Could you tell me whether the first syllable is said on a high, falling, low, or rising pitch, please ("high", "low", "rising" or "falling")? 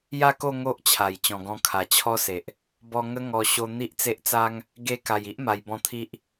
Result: falling